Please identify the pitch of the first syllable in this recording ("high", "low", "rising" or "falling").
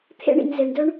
high